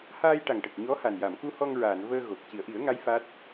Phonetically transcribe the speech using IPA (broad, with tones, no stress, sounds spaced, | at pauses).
h aː˧ j ʈ a˨˩ ŋ ʈ ə˨˩ k̚ ɲ ɔ˧˥ h a˨˩ n j a˨˩˨ m k u˧ h ɔ˧ ŋ ɹ aː˨˩˨ n v əː˧ ɣ o˨˩ k̚ c i˨˩˨ ə̯ ʔ i˨˩˦ ə̯ ŋ a˧˥ j f aː˦˥ t̚